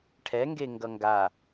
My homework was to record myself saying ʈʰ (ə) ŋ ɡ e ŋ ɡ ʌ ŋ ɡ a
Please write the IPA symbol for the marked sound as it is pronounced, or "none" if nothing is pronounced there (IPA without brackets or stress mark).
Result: ɛ